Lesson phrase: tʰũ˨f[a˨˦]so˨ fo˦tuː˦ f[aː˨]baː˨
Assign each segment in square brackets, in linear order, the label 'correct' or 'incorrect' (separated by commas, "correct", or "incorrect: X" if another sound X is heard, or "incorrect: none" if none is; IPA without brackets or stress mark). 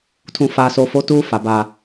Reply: incorrect: a˨, incorrect: a˨